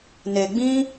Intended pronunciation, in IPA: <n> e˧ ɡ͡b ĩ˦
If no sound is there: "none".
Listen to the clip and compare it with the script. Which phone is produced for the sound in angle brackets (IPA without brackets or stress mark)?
n